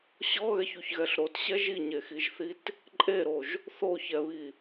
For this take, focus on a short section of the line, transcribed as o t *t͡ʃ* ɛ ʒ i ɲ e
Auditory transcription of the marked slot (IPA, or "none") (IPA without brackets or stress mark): ɕ